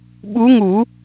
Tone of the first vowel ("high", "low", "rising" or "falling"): rising